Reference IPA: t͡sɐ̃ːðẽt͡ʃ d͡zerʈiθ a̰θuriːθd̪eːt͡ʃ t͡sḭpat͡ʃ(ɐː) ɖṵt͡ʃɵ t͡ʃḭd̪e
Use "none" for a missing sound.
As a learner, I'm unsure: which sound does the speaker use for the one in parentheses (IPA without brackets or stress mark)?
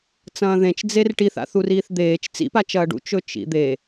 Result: ɐː